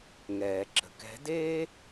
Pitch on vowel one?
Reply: low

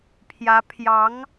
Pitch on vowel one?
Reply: rising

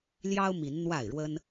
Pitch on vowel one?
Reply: high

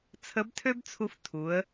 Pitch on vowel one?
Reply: rising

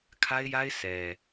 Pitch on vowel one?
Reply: high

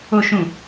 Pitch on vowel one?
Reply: low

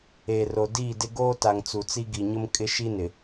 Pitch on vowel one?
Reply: low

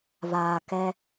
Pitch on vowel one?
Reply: low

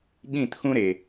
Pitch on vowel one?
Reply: falling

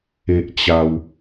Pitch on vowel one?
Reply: high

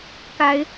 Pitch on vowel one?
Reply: rising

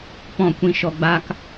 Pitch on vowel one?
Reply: falling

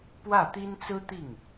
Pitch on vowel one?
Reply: falling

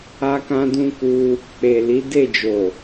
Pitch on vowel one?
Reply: high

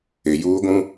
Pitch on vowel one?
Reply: low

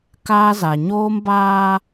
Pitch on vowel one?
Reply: high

